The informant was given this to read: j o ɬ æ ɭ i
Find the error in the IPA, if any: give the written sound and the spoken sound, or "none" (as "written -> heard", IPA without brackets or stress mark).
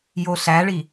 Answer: none